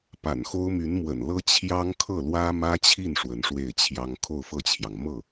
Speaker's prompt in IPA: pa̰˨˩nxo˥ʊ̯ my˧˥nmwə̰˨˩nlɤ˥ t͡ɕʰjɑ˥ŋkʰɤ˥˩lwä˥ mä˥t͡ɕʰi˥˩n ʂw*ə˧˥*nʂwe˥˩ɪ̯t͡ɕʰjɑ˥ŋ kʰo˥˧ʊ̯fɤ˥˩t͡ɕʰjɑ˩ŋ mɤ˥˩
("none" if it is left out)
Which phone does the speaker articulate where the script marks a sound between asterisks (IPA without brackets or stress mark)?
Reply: ə˧˥